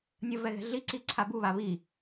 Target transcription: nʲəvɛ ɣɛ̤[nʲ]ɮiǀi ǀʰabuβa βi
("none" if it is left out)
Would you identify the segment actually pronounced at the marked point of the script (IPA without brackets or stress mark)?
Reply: none